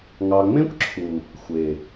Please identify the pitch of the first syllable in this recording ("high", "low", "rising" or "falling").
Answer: low